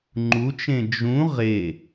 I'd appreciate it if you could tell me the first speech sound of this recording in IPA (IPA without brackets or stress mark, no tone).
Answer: ŋ͡ǃ